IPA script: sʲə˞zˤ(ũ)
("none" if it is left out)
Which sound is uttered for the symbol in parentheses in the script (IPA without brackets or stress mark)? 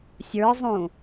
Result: ũ